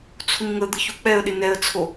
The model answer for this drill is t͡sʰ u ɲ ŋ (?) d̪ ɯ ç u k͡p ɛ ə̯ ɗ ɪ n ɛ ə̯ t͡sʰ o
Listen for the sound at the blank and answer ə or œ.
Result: ə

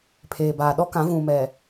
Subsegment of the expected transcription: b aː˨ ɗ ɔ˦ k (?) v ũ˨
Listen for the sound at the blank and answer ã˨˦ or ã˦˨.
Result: ã˨˦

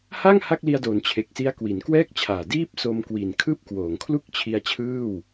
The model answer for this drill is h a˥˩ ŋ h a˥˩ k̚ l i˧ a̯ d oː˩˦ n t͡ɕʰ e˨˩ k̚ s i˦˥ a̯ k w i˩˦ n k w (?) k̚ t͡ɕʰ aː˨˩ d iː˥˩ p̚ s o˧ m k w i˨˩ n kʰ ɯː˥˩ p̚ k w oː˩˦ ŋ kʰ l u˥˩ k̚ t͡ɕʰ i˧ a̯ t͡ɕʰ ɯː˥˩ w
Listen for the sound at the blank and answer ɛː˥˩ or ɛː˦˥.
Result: ɛː˥˩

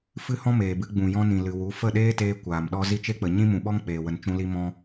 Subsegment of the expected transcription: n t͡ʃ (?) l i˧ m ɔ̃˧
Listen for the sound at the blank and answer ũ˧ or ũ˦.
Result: ũ˧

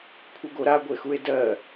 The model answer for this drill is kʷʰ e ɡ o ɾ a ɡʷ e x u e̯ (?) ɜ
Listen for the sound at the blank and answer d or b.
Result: d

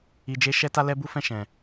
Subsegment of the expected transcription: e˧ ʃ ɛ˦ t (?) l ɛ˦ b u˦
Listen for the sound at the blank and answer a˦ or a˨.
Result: a˦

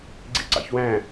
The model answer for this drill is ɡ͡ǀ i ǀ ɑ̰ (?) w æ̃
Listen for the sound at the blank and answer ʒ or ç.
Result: ç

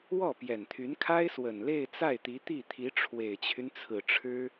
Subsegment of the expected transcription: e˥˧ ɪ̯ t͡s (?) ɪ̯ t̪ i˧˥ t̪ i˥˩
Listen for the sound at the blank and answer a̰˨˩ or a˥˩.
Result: a˥˩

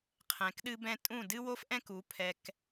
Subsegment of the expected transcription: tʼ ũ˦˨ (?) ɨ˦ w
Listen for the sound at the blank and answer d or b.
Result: d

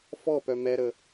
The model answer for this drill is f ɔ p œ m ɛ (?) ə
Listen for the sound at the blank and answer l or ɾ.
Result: ɾ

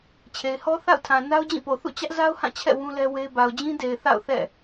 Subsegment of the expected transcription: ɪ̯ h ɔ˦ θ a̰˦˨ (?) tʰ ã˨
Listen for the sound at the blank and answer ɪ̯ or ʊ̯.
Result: ʊ̯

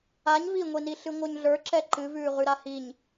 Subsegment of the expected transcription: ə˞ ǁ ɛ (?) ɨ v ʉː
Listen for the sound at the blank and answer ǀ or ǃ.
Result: ǃ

